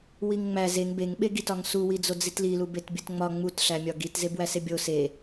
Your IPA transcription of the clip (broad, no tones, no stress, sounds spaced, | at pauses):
w i ŋ ŋ͡m æ z e ŋ b e ŋ ɓ e ɡ i t ɒ ŋ s u w i d͡z o d͡z i t l i l u b e t bʲ u t ŋ͡m ɒ ŋ͡m u t ɬ æ mʲ ɒ ɡ i t z e b w æ s e bʲ o s e